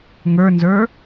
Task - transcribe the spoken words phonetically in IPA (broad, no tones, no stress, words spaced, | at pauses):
ŋə˞nzə˞